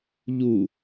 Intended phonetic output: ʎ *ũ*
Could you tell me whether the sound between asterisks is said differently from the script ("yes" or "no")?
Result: yes